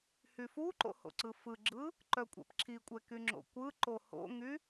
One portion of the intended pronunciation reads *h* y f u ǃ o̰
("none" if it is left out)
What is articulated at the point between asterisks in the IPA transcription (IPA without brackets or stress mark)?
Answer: h